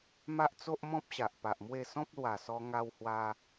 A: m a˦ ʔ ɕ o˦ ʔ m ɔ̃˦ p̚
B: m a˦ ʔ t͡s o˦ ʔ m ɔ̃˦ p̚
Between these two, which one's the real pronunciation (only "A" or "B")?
B